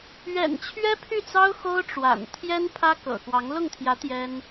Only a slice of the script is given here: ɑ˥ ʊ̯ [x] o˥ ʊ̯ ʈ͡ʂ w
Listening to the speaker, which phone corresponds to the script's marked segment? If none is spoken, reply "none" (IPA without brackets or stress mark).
x